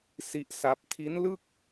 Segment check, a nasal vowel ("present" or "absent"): absent